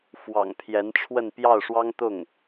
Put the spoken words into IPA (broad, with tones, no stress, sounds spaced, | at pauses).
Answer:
f w ɑ̰˨˩ ŋ pʰ j ɛ˧˥ n ʈ͡ʂʰ w ə˥˧ n p j ɑ˥˩ ʊ̯ ʂ w ɑ˥ ŋ t̪ ʊ˥˩ ŋ